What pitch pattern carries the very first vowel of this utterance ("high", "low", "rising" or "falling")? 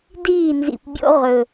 falling